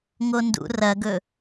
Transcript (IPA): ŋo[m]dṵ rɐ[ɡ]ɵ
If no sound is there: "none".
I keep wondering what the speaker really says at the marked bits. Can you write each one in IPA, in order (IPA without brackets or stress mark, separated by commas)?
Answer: n, ɡ